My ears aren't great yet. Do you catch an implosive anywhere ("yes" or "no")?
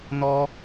no